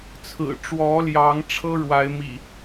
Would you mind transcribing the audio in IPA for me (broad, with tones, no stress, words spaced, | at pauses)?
t͡sʰɹ̩˨˩ʈ͡ʂwɔ˨˦ljɑ˨˦ŋʈ͡ʂʰɤ˦ ɻwa˨˦ɪ̯mḭ˨˩